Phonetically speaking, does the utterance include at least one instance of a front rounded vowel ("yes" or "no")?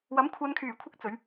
yes